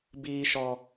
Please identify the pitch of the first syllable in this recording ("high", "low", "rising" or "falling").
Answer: low